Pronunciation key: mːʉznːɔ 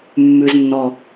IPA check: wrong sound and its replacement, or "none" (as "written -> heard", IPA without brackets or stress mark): none